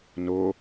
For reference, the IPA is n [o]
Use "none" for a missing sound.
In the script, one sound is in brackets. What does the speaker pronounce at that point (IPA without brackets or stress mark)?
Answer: o